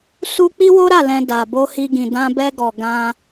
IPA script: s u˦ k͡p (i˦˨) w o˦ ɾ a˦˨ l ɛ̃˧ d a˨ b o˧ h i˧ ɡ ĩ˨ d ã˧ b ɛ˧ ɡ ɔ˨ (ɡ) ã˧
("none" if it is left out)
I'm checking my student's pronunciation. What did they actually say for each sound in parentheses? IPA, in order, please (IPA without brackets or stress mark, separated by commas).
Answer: i˦, ɡ